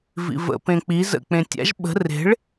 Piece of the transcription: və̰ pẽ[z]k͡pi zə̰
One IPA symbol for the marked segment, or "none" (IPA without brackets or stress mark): none